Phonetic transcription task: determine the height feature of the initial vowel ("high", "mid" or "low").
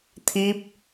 high